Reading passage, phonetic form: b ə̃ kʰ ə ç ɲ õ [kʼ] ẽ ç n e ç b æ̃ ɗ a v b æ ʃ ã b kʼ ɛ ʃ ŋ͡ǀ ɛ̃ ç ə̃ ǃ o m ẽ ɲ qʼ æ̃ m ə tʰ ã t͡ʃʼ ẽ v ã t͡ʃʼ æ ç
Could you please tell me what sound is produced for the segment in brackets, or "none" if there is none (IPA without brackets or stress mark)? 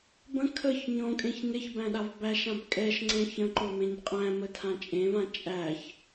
kʼ